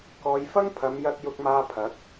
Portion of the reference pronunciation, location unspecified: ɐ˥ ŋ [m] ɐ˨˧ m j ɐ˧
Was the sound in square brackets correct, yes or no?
no